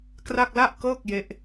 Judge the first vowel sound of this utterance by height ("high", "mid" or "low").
low